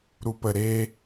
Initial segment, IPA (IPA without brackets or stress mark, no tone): ɾ